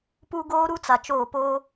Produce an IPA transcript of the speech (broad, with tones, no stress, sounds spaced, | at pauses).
p u˦ ɡ oː˦ ɾ u˦ t͡s a˨ t͡ʃ oː˦˨ p oː˦